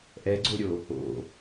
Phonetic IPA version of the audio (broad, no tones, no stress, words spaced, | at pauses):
ʔɛɡ͡ǀoɾʲo | o̰